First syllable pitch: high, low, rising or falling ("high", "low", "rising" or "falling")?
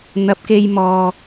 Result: low